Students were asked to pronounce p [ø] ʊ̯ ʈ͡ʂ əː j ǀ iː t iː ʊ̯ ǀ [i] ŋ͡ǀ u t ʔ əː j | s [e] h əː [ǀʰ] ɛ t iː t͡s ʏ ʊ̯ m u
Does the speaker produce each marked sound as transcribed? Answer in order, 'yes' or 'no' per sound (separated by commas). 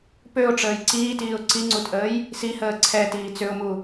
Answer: yes, yes, no, yes